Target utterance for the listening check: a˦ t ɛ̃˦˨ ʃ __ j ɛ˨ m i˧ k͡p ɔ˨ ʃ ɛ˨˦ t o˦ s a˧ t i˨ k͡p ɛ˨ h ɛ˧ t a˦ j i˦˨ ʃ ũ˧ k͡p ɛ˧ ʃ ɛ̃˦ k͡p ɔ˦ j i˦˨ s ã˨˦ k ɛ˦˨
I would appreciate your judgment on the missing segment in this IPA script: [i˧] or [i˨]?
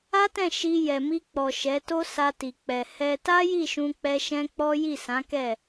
i˧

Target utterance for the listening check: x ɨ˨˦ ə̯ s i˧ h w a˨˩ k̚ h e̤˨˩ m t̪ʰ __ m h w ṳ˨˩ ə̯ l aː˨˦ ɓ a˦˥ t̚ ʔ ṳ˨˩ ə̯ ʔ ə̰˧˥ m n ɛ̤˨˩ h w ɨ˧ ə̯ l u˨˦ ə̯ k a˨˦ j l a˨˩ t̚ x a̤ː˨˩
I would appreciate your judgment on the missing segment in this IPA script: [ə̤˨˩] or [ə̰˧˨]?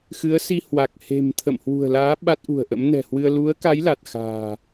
ə̰˧˨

